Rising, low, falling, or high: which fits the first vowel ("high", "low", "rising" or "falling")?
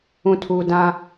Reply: low